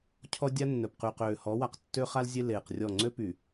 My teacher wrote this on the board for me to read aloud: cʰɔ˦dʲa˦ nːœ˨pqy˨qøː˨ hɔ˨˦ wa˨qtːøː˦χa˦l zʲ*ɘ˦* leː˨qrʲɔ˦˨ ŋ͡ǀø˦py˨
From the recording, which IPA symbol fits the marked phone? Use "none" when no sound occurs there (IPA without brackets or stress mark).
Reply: e˦